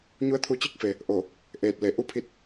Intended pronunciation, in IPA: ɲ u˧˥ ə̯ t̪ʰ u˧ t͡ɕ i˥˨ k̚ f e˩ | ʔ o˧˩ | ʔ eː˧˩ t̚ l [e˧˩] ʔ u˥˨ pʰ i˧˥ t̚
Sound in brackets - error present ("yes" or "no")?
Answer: no